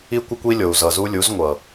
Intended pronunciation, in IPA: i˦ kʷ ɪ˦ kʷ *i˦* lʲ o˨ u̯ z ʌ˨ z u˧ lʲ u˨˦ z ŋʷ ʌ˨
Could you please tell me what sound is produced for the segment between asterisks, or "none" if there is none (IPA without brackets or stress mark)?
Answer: i˦